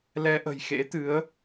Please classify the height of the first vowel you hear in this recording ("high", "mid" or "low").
mid